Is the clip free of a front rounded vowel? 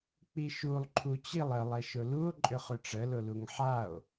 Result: no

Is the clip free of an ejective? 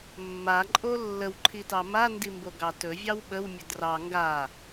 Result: no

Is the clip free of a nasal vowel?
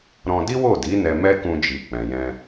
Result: no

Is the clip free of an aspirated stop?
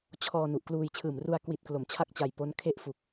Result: no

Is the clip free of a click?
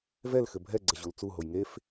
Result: no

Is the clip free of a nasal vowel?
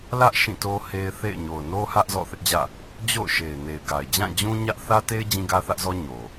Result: no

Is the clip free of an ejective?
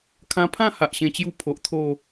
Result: yes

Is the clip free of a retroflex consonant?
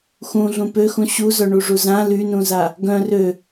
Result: no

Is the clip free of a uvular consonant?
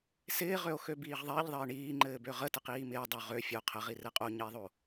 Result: no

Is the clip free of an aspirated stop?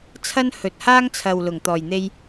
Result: no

